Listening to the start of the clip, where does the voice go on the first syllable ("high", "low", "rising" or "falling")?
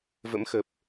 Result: rising